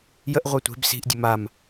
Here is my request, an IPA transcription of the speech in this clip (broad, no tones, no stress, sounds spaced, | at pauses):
j ə ʔ ʁʷ a tʷ e̤ b s i̤ ʔ dʲ ə m a m